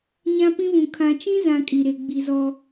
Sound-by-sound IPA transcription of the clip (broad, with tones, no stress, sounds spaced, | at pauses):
ɲ ã˦ p ĩ˦ β ũ˨ kʰ ã˨ t͡ʃ ĩ˦ z ã˨ kʼ i˨ ɾ e˨ ɡ͡b i˨ z ɔ˨